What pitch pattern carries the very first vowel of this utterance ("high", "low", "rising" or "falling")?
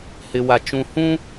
low